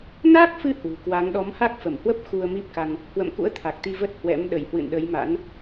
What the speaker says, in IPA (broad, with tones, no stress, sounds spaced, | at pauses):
n aː˦˥ k̚ f ɨ˧ h w ɨ̤˨˩ k w a˨˦ ŋ ɗ ɔ˨˦ m h a˦˥ k̚ f ə˧˩ m h w ə˦˥ p̚ x u˧ ə̯ m i˦˥ p̚ k a˧ ŋ | h w ə̰˧˨ m k ṵ˧˥ ə̯ t̪ʰ a˨˩ k̚ t̪ i˧ v ə˦˥ t̚ h w ɛ̰˧˥ m ɗ ə˧˩ j h w ɨ̰˧˨ n ɗ ə˨˦ j m a̰˧˥ n